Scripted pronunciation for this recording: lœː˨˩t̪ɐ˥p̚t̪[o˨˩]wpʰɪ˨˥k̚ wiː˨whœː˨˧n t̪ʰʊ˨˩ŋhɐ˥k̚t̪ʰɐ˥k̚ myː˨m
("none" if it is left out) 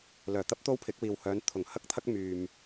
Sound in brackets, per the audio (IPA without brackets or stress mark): o˥